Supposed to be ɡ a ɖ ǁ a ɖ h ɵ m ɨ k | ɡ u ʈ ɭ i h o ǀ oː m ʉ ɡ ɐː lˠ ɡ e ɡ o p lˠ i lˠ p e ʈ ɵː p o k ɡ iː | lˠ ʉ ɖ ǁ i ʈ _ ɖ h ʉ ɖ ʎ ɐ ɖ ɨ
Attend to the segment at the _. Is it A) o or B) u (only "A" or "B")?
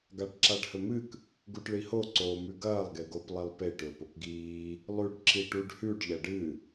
B